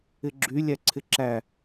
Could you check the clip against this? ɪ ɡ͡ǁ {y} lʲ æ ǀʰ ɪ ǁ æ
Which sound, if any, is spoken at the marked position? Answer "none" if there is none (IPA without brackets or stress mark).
y